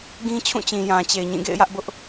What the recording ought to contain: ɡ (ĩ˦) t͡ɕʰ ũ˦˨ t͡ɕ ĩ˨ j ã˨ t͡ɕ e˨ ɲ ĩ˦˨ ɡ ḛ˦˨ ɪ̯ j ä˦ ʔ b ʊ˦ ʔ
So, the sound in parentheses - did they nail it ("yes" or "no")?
yes